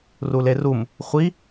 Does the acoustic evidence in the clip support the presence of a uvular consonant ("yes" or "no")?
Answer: yes